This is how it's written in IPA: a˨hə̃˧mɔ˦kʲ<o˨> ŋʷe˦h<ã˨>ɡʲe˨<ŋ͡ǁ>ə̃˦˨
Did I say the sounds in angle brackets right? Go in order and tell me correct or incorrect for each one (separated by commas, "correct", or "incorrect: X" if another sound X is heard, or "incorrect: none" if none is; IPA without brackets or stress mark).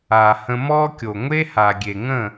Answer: correct, incorrect: a˨, incorrect: ŋ